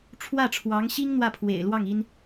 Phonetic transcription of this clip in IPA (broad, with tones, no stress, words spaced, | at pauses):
ʈ͡ʂʰwä˥˩ʈ͡ʂʰwɑ˧˥ŋɕi˥ŋ n̪wä˥˩pʰwḛ˨˩ɪ̯lwɑ˥˩ŋ i˥n